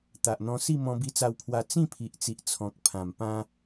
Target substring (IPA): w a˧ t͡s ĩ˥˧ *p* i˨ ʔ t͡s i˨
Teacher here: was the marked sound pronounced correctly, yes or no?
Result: no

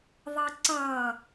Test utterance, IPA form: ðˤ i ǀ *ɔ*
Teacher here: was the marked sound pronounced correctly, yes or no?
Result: no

